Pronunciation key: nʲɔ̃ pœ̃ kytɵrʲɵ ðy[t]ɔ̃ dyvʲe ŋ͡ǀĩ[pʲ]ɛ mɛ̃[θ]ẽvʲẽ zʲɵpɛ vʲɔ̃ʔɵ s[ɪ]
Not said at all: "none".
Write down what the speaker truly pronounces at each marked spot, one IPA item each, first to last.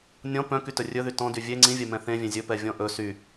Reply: t, vʲ, θ, y

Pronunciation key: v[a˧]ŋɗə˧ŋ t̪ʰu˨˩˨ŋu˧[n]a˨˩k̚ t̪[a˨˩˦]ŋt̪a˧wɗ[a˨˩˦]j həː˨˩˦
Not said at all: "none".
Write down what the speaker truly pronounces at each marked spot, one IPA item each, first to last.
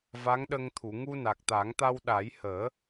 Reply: a˧˥, n, a˨˩˦, a˨˩˦

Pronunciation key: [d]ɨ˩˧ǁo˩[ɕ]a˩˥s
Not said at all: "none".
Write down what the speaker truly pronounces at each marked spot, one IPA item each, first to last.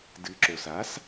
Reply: d, s

